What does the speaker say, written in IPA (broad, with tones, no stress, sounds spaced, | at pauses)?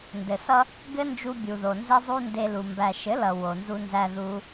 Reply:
n d ɘ˨ s ʌ˦ | ɡ ɘ˦ n d͡ʒ u˧ bʲ u˨ ð o˨ n z ɘ˦ zˤ u˦ n d e˧ l u˨ m b æ˨ ʃ ɘ˨˦ l ʌ˨ w o˨ n z u˧ n z æ˧ ð u˧